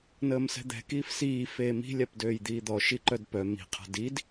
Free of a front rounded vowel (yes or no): no